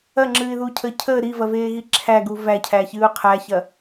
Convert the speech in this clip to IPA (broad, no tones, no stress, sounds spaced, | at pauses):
ɐ ŋ͡ǁ ɨː ɪ̯ ð uː cʰ əː cʰ əː ɾ i v ɐ v eː ɣ i ǁʰ æ ɡ u v æ cʰ æ ç ɨː ʊ̯ qʰ æ ç ɐ